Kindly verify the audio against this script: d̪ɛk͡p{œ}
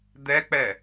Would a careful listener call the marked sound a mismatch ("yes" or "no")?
yes